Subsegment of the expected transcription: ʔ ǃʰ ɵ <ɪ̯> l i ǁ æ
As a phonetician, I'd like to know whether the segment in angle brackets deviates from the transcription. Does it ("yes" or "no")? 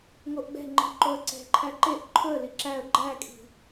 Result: yes